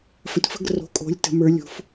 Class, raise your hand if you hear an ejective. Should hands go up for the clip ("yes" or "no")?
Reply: yes